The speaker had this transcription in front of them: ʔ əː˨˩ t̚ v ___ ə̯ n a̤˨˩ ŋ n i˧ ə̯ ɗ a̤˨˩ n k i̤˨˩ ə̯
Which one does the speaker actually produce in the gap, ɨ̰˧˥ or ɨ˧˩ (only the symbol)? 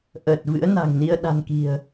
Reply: ɨ̰˧˥